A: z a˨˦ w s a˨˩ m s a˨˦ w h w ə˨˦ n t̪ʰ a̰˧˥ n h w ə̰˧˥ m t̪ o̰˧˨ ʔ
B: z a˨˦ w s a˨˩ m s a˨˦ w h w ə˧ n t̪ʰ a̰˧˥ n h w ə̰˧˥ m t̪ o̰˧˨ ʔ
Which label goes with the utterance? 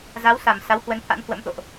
A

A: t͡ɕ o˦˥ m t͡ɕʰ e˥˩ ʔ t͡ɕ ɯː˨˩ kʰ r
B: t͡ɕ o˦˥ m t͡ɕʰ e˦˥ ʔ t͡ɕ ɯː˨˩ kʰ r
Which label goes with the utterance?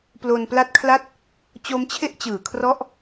A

